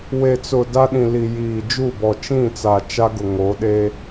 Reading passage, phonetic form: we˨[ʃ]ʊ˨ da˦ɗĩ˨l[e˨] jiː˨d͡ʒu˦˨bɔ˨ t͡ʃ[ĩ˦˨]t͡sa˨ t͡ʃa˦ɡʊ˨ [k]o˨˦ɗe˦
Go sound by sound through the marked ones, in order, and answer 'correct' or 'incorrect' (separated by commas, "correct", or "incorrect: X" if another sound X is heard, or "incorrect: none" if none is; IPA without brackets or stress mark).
incorrect: t͡s, incorrect: i˨, correct, incorrect: ŋ